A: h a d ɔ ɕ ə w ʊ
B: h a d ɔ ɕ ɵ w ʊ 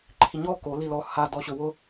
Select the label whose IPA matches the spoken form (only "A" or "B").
B